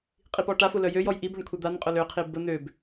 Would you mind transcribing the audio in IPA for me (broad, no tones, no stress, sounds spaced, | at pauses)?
qʼ i p ɔ ʈ a f ʊ l œ j ø j ɔ j ʔ i b ø ɳ kʷʰ ɛ d̪ a n qʼ ʊ l ø qʰ i b ə n̪ ø b